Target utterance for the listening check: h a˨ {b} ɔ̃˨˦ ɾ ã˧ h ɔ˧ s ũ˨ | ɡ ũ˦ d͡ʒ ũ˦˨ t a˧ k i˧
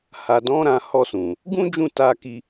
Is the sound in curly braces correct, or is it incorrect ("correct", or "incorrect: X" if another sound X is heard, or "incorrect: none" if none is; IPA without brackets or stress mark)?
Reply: incorrect: d